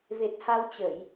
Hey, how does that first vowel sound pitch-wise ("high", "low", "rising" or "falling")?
low